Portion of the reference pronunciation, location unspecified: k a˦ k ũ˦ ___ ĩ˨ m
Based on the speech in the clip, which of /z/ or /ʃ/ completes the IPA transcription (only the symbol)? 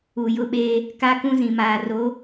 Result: z